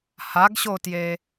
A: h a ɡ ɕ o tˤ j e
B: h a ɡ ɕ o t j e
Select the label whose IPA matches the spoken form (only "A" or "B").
B